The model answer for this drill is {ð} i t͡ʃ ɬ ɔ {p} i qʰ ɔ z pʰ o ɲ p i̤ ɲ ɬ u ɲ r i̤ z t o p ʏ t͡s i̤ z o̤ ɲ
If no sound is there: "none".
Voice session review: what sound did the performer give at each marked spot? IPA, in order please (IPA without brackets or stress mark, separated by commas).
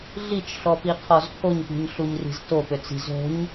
ɮ, p